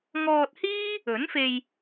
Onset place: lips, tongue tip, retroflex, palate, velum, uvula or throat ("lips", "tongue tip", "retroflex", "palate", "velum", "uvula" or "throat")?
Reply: velum